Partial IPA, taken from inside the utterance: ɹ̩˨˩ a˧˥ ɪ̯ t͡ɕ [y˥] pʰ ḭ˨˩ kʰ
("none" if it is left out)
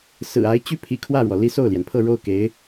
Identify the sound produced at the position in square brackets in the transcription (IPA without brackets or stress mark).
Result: y˥